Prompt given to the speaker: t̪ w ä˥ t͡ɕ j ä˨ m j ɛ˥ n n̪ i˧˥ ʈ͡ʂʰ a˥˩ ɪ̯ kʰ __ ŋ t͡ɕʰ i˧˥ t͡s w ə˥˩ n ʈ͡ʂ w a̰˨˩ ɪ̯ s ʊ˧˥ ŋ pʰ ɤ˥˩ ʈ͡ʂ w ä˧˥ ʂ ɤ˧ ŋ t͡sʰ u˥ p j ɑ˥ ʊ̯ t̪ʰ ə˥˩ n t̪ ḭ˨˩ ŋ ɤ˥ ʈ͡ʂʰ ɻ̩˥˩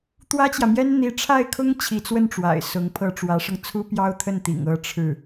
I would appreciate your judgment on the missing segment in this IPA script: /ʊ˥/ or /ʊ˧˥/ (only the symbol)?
ʊ˥